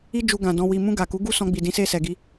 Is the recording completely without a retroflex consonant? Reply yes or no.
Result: yes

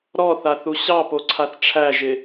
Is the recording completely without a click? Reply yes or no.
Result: no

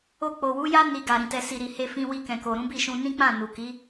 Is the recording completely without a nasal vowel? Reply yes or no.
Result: no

